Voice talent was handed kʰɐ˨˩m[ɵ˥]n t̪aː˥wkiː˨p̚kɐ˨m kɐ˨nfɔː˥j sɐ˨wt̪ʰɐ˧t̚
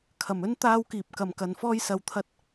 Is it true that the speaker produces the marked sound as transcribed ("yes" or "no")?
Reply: yes